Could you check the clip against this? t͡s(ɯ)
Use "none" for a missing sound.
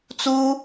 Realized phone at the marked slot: u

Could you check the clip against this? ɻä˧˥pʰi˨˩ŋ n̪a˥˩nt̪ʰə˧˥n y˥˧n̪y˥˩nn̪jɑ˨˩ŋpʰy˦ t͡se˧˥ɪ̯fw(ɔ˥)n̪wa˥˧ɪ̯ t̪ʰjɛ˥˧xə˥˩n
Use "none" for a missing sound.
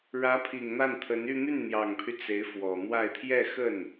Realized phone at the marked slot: ɔ˨˩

